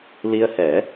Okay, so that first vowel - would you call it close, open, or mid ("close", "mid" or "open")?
close